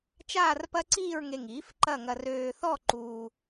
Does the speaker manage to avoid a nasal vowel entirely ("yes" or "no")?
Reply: yes